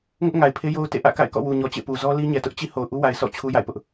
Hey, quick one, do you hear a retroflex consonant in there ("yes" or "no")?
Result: no